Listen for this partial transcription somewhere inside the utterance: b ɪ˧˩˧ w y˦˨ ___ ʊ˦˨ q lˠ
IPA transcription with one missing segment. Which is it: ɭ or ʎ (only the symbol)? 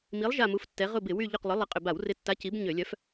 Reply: ʎ